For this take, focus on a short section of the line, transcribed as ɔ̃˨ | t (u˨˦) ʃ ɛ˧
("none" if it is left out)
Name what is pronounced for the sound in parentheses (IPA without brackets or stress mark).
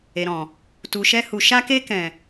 u˨